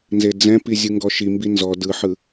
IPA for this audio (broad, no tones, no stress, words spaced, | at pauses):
nzed͡zɛ̃pi zʲɯŋɡɔʃimbi nzɔ dɯħɯ